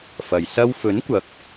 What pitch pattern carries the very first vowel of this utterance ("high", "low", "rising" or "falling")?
low